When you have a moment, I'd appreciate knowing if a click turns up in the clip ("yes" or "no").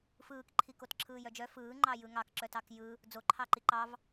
yes